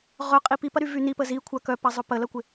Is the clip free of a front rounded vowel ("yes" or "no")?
no